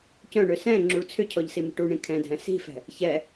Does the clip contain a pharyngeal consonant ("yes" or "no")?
no